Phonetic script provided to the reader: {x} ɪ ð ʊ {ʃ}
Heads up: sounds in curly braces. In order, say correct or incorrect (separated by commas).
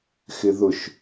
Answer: correct, correct